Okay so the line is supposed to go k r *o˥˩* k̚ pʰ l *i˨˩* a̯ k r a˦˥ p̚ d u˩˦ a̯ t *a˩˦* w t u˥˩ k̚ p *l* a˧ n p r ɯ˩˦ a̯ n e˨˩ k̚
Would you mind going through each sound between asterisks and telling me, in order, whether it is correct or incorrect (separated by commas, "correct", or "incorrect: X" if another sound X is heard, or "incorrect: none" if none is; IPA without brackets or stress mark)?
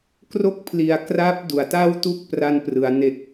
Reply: correct, correct, incorrect: a˥˩, incorrect: r